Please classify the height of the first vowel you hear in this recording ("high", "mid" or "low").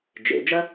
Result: mid